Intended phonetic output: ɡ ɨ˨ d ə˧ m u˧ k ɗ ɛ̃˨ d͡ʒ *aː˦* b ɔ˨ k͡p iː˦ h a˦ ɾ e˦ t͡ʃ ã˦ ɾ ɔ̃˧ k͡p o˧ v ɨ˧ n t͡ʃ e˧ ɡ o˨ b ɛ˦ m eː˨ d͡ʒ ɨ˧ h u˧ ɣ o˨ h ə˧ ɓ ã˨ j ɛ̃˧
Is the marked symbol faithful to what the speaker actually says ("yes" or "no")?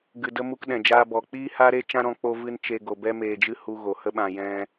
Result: no